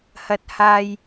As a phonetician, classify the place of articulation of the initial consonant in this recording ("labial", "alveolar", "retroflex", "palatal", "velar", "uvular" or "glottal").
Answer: glottal